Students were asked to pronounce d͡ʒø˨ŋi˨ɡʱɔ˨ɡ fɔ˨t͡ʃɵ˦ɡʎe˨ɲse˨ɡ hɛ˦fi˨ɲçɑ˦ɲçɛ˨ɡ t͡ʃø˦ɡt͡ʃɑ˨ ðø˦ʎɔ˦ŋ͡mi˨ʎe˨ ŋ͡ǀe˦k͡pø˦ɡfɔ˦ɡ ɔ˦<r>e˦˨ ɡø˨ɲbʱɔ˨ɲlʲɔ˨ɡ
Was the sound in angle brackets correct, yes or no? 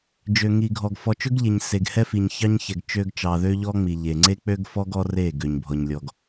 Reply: yes